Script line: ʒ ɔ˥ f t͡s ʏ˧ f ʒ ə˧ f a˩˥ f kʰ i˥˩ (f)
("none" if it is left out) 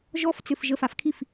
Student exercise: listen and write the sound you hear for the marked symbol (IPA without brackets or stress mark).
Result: f